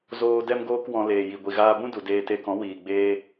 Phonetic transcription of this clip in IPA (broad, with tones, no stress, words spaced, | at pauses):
zoː˧ dɛ˦mɡoː˦kwɔ̃˧ leː˨ji˨ɡʷi˨ɣaː˧ bũ˦du˨ deː˧te˧kɔ̃˨˦ wiː˨ɡ͡beː˧